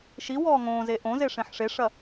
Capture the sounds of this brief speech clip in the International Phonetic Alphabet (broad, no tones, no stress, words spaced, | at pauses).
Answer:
ʃi wɔːŋõːze ʔõze ʂẽħʂeʂɐ